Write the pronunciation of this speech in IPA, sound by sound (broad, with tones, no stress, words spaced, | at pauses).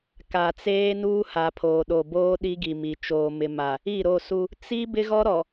ka˨t͡seː˦nuː˦ ha˨pʰoː˨ ɗo˨boː˦ ɗi˦ɡi˨mi˨ t͡ʃoː˨mɪ˨ ma˨ | i˦˨ɾo˦˨su˦ | t͡si˦ bɪ˦ɣɔ˦ ɾɔ˨